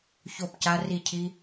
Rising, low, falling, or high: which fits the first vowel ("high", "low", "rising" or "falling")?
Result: falling